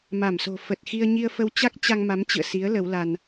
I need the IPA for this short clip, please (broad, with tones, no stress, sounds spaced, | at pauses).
m a˧˩ m s o̤˨˩ f ə˨˩ t̚ x i˧ ə̯ ɲ i˧ ə̯ f ə˧ w t͡ɕ a˦˥ k̚ t͡ɕ a˧ ŋ m a˨˦ m t͡ɕ ɨ̰˧˨ ə̯ s i˨˦ ə̯ l ə˨˦ w l a˧ n